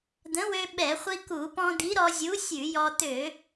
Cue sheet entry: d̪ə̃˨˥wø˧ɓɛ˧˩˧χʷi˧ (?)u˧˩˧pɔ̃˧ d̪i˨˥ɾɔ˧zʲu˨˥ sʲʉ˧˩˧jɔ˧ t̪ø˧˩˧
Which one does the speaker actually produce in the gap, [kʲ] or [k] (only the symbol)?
k